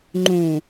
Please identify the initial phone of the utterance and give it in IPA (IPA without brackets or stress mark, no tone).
ŋ͡ǃ